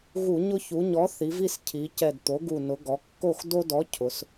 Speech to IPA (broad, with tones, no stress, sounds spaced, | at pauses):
ɣ u˧˩˧ ɲ ʊ˦ ç u˩˧ ɲ ɔ˨˥ θ i˩˧ v i˥˨ s cʰ i˩˧ c ɛ˨˩ d t̪ o˩˧ ɡ u˨˩ n ʊ˩˧ ɡ ɔ˩˧ kː o˥˨ x d o˦ d ɔ˨˥ cʰ ʊ˩˧ s